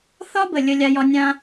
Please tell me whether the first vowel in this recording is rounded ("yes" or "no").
yes